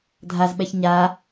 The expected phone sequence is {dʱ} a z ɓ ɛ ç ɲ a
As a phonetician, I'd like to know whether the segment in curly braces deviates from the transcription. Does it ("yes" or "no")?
no